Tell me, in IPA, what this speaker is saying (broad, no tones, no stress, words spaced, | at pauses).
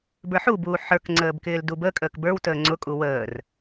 bə˞ħubuː ħə˞kŋ͡ǀəːb kɪːldubəkʼəːk bə˞wtəː ŋ͡ǀʊkʼu wəːr